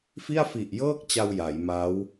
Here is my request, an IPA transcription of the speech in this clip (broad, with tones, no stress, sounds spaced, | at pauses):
f i˥˩ a̯ f i˨˩ ʔ j ɤː˥˩ k̚ t͡ɕ a˧ w j a˩˦ j m a˦˥ w